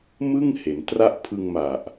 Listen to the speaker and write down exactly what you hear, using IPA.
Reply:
m ɯ˥˩ ŋ h e˩˦ n t r a˥˩ ʔ pʰ ɯ˧ ŋ m a˨˩ ʔ

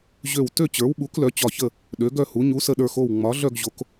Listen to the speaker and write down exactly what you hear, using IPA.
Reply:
ʑ ø˧˩ w t ø˥˨ t͡ɕ ə˞˩˥ w ɓ u˩˥ k l œ˩˥ t͡ɕ ɒ˧˩ ç ə˥˨ | ɗ ø˩˥ ɡ œ˥˨ h u˩˥ ɲ u˩˥ s ə˧˩ ɗ ə˞˧˩ x o˧˩ w ŋ͡m ɒ˩˥ ɮ œ˥˨ ɡ ʑ o˩˥ k

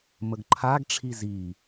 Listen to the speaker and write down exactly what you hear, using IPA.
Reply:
m ə ɡ ǃʰ a ɡ ʈ͡ʂʰ i z i

